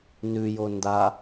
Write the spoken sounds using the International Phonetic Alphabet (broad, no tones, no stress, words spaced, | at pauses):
nʉjo nda